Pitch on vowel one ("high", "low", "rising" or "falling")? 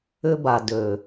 high